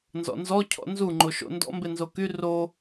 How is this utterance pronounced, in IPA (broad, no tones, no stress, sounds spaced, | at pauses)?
n z ɔ̰ n z ɔ cʰ ɔ̰ n z u ŋ͡ǃ o ʃ o̰ n d ɔ̰ m b e n z o k y r o